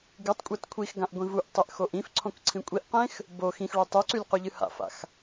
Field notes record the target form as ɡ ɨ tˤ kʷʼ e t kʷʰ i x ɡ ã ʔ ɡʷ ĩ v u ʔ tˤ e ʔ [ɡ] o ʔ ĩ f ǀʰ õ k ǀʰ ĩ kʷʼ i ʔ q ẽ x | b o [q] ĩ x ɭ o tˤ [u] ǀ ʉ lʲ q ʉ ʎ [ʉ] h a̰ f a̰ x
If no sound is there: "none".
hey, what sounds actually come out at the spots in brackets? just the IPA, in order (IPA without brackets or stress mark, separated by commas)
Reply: x, x, ʉ, ɨ